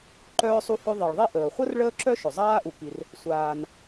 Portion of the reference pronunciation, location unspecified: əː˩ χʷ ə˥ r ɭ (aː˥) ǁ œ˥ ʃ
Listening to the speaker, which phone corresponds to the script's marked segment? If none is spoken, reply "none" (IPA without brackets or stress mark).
əː˥